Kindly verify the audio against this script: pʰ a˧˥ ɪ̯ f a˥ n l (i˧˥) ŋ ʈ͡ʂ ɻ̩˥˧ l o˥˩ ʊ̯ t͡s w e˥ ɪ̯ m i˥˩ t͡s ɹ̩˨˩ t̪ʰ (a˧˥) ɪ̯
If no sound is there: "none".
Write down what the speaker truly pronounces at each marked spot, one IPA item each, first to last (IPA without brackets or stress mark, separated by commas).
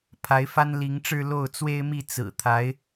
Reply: i˧˥, a˧˥